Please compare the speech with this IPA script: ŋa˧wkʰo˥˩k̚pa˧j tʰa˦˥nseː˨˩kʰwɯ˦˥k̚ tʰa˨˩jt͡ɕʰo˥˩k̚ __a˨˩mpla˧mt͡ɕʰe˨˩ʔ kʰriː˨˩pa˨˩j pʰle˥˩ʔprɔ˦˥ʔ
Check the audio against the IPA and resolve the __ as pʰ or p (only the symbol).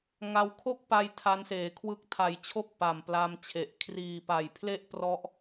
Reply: p